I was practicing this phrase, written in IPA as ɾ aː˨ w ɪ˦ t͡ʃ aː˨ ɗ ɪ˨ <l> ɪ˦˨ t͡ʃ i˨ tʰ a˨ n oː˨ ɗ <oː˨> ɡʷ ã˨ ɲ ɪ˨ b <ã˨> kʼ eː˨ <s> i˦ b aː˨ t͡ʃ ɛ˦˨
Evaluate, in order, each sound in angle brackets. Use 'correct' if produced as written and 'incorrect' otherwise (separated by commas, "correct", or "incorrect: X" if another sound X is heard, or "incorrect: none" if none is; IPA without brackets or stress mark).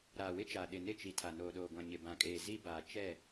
incorrect: n, correct, correct, incorrect: z